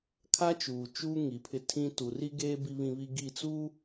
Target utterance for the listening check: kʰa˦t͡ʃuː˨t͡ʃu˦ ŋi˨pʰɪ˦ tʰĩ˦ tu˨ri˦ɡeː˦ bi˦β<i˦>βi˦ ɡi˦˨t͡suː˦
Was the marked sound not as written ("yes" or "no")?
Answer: yes